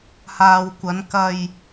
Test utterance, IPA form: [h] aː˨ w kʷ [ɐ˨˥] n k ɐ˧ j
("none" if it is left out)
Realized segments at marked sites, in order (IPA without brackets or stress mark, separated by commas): h, ɐ˨˧